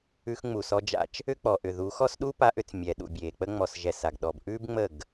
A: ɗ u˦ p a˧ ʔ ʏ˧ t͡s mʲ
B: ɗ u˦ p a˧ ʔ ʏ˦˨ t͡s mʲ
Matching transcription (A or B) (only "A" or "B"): A